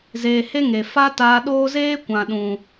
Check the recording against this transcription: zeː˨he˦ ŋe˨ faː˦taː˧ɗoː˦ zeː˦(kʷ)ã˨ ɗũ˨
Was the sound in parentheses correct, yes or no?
yes